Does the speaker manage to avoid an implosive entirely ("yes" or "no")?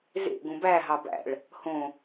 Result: yes